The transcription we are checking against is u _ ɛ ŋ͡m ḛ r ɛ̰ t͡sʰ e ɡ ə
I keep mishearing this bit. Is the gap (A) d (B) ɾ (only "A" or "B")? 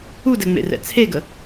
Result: A